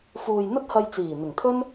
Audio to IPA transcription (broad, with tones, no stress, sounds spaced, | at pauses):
f uː˨ j n̪ ɐ˥ t̚ h ɐ˧ j t͡s iː˨˩ n̪ ɪ˨˩ ŋ t̪ʰ ɵ˥ n